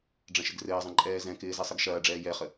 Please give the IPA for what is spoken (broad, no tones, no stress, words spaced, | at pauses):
ɖ͡ʐɐ̃ʃɪɡrɘːzˤɐ̃ ǃʼɛːzɛ̃kɪː zɛsˤɘɡʃɐːɖ͡ʐɛː jɛχə